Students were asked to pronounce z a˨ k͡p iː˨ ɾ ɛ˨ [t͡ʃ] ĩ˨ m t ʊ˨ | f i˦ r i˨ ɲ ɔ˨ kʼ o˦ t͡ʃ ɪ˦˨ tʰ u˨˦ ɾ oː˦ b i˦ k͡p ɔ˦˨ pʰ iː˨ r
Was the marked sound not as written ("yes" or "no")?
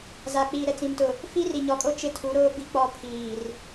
yes